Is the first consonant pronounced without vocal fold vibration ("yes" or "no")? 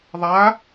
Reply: no